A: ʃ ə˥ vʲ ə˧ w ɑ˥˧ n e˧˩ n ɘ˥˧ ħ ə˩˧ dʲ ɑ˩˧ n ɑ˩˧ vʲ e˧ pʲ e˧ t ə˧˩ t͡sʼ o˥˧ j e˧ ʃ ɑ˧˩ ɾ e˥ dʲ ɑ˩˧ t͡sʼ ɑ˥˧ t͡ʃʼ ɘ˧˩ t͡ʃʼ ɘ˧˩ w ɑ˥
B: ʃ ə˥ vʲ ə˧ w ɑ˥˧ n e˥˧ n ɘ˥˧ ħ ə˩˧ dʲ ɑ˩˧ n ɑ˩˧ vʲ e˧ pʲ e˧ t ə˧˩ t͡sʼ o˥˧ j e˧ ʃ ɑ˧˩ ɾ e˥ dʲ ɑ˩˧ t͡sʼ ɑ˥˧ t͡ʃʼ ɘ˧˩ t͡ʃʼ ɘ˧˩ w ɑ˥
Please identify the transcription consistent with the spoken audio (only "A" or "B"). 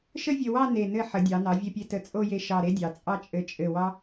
A